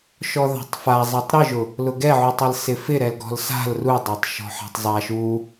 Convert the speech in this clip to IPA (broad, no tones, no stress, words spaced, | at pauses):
ʃɔða̤tˤfazˤɛtˤ ɾɯʒʊ | lʊɡɛʕutˤɪl sɪfɪ ɾɛlɡɔ̤lsa̤l rudˤatˤʃɔ̤ ħa̤tˤzˤa ʃu